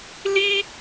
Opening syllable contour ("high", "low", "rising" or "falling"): high